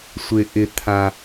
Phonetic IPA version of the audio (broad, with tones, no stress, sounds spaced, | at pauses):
sʷ ɪː˧ ʔ ɪ˧ t̪ʰ ã˧